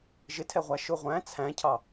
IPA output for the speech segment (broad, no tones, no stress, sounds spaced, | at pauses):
ʒ ɪ tʰ ɛ ʁʷ æ ʃ ʊ ʁʷ æ̃ t͡sʰ æ̃ cʰ ɑ